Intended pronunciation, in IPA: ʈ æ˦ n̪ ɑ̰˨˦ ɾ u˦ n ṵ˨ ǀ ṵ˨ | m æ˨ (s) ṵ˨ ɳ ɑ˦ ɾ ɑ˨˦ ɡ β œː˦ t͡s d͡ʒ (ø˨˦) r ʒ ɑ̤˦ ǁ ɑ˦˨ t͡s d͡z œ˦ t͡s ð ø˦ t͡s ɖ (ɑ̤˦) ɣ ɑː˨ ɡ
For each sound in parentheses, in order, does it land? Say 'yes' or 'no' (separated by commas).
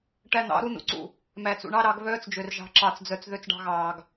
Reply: no, no, yes